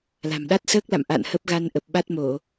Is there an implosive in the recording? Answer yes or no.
yes